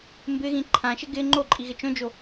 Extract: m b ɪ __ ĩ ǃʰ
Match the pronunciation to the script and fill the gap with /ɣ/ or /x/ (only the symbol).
ɣ